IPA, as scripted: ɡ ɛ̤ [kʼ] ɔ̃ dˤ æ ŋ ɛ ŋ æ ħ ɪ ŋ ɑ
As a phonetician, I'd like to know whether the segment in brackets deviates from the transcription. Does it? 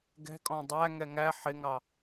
no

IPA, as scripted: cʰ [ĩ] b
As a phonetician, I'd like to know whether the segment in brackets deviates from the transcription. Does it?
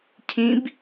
no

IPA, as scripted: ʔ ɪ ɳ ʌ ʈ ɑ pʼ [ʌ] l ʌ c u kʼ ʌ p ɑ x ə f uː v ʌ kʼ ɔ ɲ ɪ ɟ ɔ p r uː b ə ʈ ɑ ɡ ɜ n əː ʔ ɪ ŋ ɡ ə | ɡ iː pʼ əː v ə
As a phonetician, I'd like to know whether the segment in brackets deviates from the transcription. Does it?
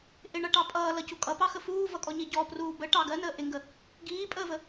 yes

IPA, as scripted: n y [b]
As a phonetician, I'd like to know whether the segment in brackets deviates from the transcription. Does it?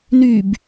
no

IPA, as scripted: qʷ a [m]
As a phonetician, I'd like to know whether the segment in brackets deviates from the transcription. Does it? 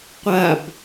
yes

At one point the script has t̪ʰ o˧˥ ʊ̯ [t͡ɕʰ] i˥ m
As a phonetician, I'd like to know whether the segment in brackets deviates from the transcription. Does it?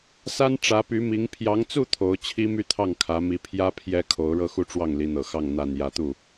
no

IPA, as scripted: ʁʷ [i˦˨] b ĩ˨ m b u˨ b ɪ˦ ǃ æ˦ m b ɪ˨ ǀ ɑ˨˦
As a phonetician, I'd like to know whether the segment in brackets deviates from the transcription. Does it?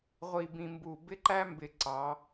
yes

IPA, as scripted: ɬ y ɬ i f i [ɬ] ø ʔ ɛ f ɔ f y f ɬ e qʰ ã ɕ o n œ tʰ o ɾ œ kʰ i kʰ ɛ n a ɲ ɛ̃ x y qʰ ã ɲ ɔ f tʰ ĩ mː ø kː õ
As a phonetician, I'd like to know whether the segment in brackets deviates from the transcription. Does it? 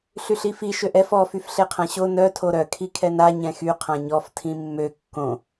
yes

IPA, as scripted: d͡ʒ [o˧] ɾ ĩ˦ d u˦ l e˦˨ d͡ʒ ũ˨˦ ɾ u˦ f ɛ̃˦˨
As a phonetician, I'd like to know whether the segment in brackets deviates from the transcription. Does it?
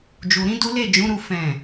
yes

